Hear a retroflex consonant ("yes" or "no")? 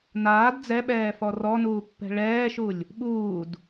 yes